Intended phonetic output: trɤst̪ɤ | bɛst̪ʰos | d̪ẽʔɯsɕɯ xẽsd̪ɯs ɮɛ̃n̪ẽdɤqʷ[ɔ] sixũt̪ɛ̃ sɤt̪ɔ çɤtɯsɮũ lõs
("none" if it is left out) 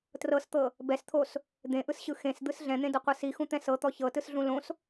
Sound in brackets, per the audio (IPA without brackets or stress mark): ɤ